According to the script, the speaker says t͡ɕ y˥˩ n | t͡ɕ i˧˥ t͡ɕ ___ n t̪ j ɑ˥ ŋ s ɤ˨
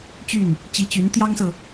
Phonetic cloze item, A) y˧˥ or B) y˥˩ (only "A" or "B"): A